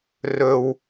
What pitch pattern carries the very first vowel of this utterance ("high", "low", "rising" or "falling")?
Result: high